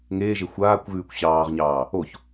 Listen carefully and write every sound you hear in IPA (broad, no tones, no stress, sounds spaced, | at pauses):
ŋ eː ʒ e xʷ aː kʷ ɣ ʉː kʷ ɕ ɑː ʁ ɲ ɑː | o ç